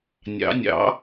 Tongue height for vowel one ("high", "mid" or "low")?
low